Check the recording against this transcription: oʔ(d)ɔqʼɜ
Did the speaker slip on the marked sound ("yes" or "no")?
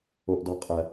no